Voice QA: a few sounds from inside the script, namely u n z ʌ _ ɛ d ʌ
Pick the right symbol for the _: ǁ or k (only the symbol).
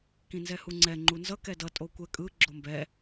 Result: k